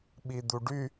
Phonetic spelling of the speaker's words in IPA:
ɓid̪uɖy

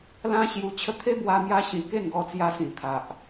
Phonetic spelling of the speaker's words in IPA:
lã˦ɕju˧ t͡ɕʰə˧t̪ʰe˦bwa˧ mja˧ɕĩ˨˩ ke˥˧nɡɔ˧t͡sja˧sĩ˨˩ t̪ʰa˨ʔ

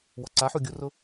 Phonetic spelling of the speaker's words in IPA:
wɔǀaħu ɡʲurʊ

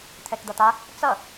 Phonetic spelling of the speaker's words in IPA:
t̪ʰɛkd̪ʌt̪a | t͡sʌ

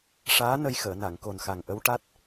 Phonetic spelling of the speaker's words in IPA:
ʂaː˧˥ nə˧jxəː˨˩˨na˨˩˨ŋ ko˨˩nxa˨˩ŋʔə˧˥w ʈa˦˥t̚

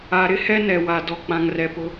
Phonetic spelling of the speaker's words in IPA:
a˨ɾɪ˦ hɛ˦nɛ˨wa˨ dɔ˨k͡pã˨ŋrɛ˨ pʊ˦

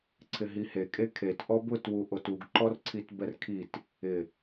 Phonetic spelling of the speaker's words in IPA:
ǀʰɪɦihe kʼekʰet ʔɔbʊt wuʔotuɡ ǃɔrǀʰitbɛrkʰit | ɪ

